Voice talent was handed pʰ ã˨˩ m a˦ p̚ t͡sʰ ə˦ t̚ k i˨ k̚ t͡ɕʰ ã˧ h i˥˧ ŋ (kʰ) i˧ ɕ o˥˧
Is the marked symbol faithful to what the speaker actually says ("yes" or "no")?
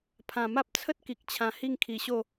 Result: yes